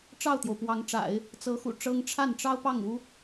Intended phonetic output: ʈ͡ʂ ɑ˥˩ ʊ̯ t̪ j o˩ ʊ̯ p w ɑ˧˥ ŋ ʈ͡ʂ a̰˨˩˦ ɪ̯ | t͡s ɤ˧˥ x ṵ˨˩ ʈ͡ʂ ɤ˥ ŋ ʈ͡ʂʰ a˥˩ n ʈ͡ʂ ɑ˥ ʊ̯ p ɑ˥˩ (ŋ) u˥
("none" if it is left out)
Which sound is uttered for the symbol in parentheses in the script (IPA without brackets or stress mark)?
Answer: ŋ